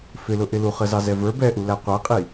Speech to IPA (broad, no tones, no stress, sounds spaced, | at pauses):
f ɪ l ʊ ʔ ɪ l u χ ə z ɑ z ɛ v ə˞ b ɛ ʔ u l æ qʷ æ qʼ i